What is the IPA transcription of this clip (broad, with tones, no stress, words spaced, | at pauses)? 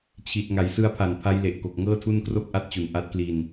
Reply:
t͡ɕʰi˨˩t̚ŋa˩˦j sɯ˦˥a̯pʰa˨˩npʰa˦˥jle˨˩ʔ ko˨˩k̚ŋɤː˥˩tʰu˥˩n kro˥˩k̚ʔa˦˥t̚t͡ɕu˨˩nʔa˦˥t̚ kli˧n